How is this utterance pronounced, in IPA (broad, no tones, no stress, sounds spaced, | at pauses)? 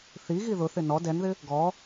θ i ɣ i ð ʊ θ ɪ n ɔ d ɛ n ð ɪ | ɡ ɔ